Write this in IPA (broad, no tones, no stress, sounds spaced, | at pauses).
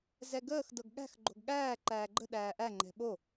z ɛ ɡ əː x d ɤ ɡ ɠ æ̤ x ɡ͡ǃ o̤ ɡ ɠ æː ǃ æː ɡ͡ǃ ə̤ ɗ æː ʔ æ ŋ͡ǃ ɛ̤ ɓ o